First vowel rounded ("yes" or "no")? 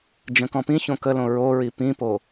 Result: no